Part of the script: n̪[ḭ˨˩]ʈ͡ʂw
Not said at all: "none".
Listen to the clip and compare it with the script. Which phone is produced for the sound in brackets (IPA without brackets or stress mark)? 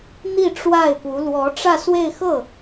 i˥˧